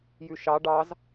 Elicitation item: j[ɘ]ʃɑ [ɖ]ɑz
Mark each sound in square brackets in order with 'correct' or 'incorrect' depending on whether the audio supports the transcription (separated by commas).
incorrect, correct